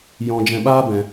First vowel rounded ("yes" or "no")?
yes